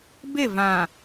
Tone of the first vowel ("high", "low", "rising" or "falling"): falling